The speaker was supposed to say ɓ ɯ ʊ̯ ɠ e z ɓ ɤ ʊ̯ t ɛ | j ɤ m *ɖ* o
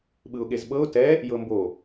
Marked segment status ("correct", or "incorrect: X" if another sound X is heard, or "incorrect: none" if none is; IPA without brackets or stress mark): incorrect: b